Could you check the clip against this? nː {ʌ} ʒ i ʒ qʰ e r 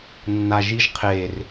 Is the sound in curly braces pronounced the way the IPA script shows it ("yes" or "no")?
no